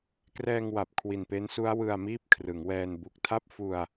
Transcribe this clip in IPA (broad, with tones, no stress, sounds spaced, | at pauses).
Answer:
k r ɛː˧ ŋ w a˨˩ p̚ kʰ w i˨˩ n p e˦˥ n s u˦˥ a̯ w ɯ˧ a̯ m iː˥˩ p̚ kʰ r ɯ˩˦ ŋ w ɛː˧ n b u˨˩ k̚ tʰ a˥˩ p̚ f u˧ a̯